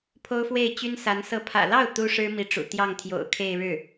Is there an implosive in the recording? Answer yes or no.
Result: no